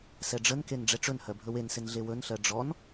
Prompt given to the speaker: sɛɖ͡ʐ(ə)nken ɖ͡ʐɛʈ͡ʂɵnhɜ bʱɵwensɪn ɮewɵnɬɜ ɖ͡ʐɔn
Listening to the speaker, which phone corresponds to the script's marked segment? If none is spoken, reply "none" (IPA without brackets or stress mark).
ə